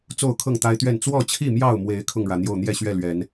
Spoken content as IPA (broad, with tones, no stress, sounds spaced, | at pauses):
t͡s o˥˨ ʊ̯ kʰ ɤ˥˨ ŋ t̪ a˦ ɪ̯ t̪ ɥ ɛ˥˨ n t͡s w ɔ˥˨ t͡ɕʰ i˥˨ m j ɑ˥˨ ʊ̯ m w e˨˦ ɪ̯ kʰ ʊ˥˨ ŋ ɻ ä˩ n̪ j o˥˨ ʊ̯ n̪ j ɛ˥˨ ɕ ɥ ɛ˥˨ l ɥ ɛ˨˦ n